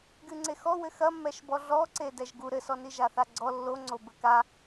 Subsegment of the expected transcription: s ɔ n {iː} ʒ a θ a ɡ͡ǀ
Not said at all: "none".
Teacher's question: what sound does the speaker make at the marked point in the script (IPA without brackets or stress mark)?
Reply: i